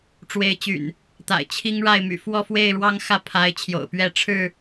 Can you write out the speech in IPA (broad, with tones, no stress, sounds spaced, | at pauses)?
ʈ͡ʂ w e˨˦ ɪ̯ t͡ɕ y̰˨˩ n | t̪ a̰˨˩ ɪ̯ t͡ɕʰ i˦ ŋ ɻ a˥˨ ɪ̯ m y̰˨˩ f w ɔ˥˨ f w e˥˨ ɪ̯ ɻ w ɑ˦ ŋ x ä˥˨ pʰ a˨˦ ɪ̯ t͡ɕʰ j o̰˨˩ ʊ̯ p ɥ ɛ˥˨ ʈ͡ʂʰ ɻ̩˥˨